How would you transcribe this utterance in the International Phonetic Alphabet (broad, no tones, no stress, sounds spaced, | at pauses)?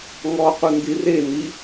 ŋ ɔ q u n d i r e n i